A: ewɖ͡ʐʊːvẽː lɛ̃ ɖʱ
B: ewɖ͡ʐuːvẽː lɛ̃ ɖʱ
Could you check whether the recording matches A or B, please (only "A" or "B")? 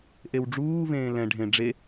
B